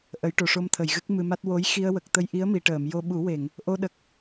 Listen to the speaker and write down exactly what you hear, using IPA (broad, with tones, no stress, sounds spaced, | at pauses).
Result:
ʔ ə˨˩˦ j ʈ o˨˩˨ ʂ o˧ m t̪ʰ ə˨˩˨ j ɣ ɨ˦˥ k̚ m ɨ˧ m a˦˥ t̚ w o˧˥ j x i˧ ə̯ w ə˨˩ k̚ t̪ ə˧ j ʔ i˧˥ ə̯ m i˨˩˨ ʈ əː˨˩˨ m j o˧ ɓ u˨˩˦ w e˨˩˨ ŋ | ʔ o˧ ɗ ə˨˩ k̚